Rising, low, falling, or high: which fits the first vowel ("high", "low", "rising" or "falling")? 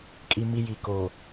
low